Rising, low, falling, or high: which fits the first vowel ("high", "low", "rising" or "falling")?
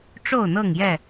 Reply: falling